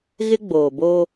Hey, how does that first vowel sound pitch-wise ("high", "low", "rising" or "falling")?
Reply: high